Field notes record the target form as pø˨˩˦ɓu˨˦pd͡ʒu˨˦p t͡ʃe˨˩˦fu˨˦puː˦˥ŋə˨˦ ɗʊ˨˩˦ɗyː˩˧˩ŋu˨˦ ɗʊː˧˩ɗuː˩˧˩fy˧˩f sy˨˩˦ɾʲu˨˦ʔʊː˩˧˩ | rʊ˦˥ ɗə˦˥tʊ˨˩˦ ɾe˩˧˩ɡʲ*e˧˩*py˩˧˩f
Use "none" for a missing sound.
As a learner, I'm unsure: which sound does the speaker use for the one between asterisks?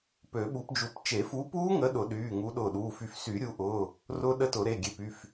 e˧˩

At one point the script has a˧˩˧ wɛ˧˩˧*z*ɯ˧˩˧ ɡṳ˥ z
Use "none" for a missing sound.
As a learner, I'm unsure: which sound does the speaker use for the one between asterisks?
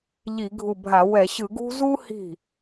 ɕ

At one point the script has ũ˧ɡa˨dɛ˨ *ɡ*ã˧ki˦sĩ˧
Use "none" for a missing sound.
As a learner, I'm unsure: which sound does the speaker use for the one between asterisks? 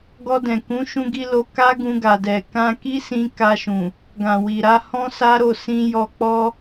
k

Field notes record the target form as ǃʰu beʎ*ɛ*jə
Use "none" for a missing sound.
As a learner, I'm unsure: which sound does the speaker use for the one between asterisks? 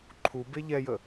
ɛ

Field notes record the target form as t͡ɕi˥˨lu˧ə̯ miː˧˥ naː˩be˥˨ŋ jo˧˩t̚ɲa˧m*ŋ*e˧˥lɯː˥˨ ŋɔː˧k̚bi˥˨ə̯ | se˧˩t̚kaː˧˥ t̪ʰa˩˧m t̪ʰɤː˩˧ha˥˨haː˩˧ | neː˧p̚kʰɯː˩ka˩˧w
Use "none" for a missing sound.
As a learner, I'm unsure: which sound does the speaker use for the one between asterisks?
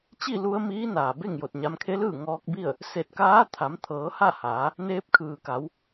kʰ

